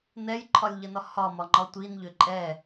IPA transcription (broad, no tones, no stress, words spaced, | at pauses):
nɛjǃʰɒlʲʎənɒ hɒmɒŋ͡ǃɒ tʷinʎʏ ǃʼɛ